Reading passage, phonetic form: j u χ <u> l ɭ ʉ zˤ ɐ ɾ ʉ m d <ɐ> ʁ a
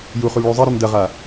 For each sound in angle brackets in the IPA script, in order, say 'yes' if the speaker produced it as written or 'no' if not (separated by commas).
yes, yes